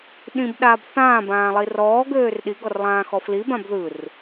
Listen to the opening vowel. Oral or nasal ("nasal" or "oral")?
nasal